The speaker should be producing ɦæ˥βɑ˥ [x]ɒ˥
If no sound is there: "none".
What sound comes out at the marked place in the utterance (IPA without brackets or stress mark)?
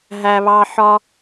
ħ